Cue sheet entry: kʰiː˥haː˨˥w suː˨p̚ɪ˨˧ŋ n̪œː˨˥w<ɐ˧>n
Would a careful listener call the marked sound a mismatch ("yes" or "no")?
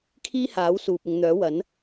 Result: yes